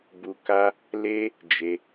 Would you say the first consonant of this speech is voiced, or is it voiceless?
voiced